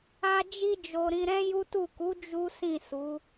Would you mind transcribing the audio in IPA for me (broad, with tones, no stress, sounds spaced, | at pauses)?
a˦ d͡ʒ i˧ d͡ʒ o˨ ɾ ĩ˧ ɾ ɛ̃˦ j u˦ t u˦˨ k u˨˦ d͡ʒ u˦ s ĩ˦˨ s u˨˦